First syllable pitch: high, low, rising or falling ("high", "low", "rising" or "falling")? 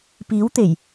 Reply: rising